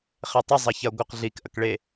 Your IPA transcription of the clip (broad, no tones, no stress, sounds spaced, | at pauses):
χ e tˤ ə zˤ ɐ ç ɐ ɡʷ ɐ q ɮ i k ʔ ɐ k ɭ e